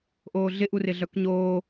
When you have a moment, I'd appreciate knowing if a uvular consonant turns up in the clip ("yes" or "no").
no